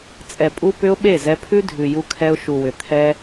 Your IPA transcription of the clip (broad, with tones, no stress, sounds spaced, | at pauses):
t͡sʼ ɛ˨ pʼ u˧ p ʏ˧ ʊ̯ ɓ e˦˨ z ɛ˧ pʰ ʉ˦ dʱ ʉ˨ j u˧ kʰ ɛ˧ ʊ̯ ʃ u˨ w ʏ˨ t̪ʰ ɛ˦